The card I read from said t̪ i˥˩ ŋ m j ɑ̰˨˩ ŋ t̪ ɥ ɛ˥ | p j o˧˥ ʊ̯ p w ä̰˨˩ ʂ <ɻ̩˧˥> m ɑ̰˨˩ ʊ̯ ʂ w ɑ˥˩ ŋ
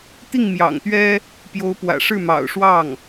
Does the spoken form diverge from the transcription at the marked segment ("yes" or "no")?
yes